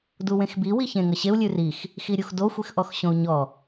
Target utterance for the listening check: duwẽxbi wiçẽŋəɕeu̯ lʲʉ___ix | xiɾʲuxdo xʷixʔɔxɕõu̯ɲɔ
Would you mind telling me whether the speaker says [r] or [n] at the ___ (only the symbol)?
r